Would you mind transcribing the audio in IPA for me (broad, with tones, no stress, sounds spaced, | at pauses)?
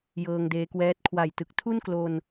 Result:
j ɤː˧ ŋ d eː˦˥ k w ɛː˦˥ t̚ kʰ w a˨˩ j t ɯ˨˩ k̚ tʰ u˥˩ n k l o˧ n